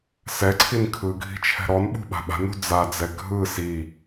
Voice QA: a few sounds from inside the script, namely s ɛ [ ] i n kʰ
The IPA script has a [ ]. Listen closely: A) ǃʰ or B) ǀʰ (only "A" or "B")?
B